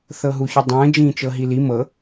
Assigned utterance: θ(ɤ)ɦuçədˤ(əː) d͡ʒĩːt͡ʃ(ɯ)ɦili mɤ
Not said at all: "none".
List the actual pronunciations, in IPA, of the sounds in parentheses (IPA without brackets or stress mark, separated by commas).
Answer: ɤ, ə̃ː, ɤ